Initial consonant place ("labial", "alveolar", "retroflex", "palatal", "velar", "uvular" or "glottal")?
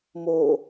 labial